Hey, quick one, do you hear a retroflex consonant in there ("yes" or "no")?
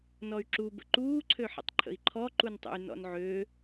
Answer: no